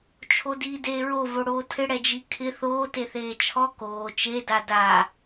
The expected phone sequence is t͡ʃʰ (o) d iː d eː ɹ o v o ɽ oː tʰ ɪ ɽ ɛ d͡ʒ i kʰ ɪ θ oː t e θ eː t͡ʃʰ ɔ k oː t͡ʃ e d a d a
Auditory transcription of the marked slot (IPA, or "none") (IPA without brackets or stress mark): o